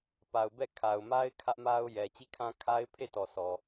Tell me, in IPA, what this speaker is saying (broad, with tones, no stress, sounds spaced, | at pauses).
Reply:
p a˨ ʊ̯ b ɛ˦˨ kʰ a˨ ʊ̯ m a˦ ɪ̯ kʰ ä˦ ʔ m a˦ ʊ̯ j ɛ˨ t͡ɕ i˦˨ kʰ ã˦ kʰ a˦ ɪ̯ pʰ e˦˨ t ɔ˨ sʰ ɔ˨